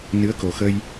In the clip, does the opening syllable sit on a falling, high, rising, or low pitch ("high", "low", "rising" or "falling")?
rising